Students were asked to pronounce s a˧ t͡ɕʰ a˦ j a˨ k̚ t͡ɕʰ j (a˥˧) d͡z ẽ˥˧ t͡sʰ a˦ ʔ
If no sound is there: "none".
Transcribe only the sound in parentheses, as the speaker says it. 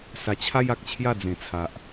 a˥˧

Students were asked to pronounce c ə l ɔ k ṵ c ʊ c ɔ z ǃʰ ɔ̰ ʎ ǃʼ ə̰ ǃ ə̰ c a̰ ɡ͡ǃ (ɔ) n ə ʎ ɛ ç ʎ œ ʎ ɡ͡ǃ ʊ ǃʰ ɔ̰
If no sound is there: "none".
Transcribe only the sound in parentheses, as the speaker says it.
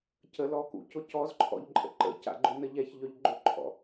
ʊ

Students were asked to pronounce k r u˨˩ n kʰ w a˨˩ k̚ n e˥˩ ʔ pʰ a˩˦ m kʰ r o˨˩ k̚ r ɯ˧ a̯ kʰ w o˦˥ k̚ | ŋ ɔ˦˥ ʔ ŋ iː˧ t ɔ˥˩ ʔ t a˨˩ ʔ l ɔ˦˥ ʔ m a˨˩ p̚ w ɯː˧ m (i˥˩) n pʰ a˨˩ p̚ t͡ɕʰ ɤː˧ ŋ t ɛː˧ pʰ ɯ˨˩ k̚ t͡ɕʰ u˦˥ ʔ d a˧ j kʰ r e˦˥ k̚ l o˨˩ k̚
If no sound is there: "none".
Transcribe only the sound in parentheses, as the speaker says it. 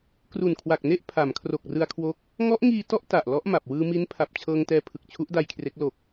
i˦˥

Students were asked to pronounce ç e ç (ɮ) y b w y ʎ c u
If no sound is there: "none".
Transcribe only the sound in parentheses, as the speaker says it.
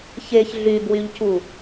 ɮ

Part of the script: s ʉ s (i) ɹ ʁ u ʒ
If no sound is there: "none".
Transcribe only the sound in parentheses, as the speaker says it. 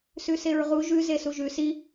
e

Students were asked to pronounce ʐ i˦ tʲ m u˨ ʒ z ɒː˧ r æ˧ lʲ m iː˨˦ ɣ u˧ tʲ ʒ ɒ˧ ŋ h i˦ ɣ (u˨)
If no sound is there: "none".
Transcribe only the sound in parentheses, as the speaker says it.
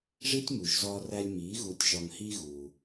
u˧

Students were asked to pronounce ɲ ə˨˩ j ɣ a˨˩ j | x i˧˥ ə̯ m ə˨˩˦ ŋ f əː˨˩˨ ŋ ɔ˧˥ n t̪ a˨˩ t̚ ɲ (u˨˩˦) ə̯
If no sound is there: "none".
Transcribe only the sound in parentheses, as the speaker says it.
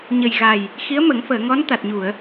u˨˩˨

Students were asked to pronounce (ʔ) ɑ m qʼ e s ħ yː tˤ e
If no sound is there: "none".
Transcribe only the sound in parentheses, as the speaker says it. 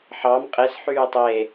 ħ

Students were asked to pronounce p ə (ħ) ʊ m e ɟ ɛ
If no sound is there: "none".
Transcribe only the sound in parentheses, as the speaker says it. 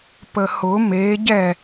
h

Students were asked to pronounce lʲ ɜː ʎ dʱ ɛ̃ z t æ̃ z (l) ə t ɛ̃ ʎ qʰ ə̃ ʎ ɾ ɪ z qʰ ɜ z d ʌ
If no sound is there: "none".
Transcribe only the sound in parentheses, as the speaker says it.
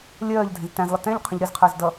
lˠ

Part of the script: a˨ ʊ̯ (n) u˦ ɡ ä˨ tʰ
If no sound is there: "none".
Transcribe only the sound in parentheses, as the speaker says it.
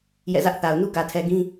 n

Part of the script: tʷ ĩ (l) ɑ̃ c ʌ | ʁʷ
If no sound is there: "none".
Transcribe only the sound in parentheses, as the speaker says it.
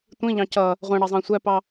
ʎ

